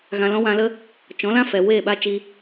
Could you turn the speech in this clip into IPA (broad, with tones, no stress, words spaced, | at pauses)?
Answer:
ɣã˧lɔ̃˦wã˧lə˦ | t͡ʃɔ̃˨˦lã˦fɛ˨ weː˦˨ɓa˦ t͡ʃi˧